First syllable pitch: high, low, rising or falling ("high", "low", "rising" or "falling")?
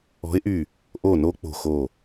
rising